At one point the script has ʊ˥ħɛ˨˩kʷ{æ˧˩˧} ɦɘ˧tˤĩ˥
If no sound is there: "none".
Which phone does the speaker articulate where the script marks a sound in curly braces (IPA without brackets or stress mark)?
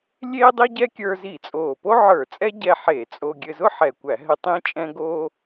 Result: æ˧˩˧